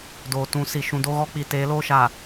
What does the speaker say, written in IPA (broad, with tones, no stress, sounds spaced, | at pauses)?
d oː˨ t ũ˨˦ s i˨ ʃ ũ˨ d o˦ ɣ ɔ˦ k͡p i˨ t eː˨˦ l oː˦ ʃ aː˨